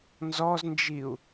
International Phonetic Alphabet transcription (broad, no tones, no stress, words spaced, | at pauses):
nzɔznd͡ʒiu̯